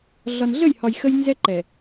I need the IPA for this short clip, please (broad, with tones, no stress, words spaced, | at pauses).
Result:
ɮɒ˨nɮə˦˨jhɒ˨j xə˦jnzɛ˦ ǃɛ˨